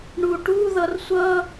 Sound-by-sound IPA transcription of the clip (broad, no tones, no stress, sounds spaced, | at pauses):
ɳ u ʈ u ð ʌ r sʷ ʌ